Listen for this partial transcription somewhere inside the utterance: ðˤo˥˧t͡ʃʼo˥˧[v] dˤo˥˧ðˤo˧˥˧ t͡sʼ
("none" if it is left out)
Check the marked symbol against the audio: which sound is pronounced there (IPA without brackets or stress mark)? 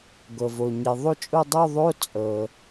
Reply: none